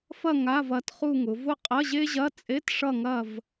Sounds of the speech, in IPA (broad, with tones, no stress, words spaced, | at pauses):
fɐ˦˨ ŋa˧˥˧vɐ˦˨t χu˦˨ŋʊ˩˧ vʊ˦˨ qʼɐ˧˥˧ʑe˥ʑɐ˧˥˧ t͡sʼe˧˥˧tʂʌ˦˨ŋɐ˦˨v